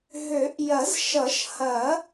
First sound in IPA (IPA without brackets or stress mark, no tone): ɦ